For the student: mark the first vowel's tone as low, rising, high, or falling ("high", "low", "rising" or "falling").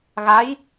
rising